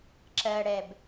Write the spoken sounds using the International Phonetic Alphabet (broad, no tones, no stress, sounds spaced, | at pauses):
ǁ ɜ ɽ ɛ b